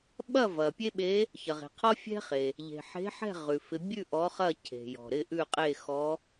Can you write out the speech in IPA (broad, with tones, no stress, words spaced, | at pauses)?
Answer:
ɓɐ˥˨vɐ˩ pʲe˥ɓe˧˥ | çɐ˩ʁe̤˩qʰɔ˥ fʲɛ̤˥χe˩ | ʎe̤˩ħe̤˧˥ħɛ̤˥˨ ʁʉ˩fɪ˧˥ bʲʉ˥˨ ʔɔ˧˥χɐ˥˨cʰe̤˩jɔ̤˩ ɾɪ˥˨ʔʉ˥˨qʼe˥˨ xɔ˧˥